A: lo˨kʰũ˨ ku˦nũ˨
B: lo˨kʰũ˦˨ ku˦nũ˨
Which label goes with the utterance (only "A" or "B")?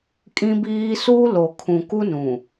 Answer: A